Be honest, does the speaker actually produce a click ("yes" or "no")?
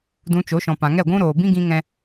no